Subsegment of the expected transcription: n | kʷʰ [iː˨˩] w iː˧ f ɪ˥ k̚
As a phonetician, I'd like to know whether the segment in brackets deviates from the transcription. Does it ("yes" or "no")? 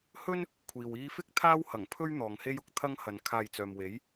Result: yes